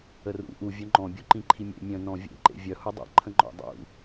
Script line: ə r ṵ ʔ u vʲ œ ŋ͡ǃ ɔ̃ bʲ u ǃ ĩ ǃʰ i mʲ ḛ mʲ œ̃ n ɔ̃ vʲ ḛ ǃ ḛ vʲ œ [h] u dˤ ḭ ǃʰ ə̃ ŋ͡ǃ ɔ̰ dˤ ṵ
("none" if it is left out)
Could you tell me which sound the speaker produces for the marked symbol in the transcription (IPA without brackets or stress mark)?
h